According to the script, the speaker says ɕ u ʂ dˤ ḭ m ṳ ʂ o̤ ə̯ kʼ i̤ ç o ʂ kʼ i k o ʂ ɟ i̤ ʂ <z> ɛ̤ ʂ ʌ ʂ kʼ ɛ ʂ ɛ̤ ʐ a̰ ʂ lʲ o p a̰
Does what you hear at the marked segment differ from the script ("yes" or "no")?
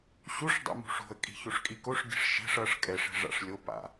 yes